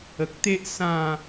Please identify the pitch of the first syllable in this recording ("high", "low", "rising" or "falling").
low